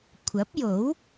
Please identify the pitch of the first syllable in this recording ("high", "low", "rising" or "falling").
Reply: rising